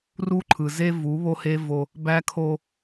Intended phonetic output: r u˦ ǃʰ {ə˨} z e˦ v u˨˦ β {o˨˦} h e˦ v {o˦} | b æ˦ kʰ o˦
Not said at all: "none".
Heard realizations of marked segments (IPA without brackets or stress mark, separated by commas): ɯ˨, o˦, o˦